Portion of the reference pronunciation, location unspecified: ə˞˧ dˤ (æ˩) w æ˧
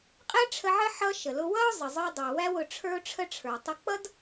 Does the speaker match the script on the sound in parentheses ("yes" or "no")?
yes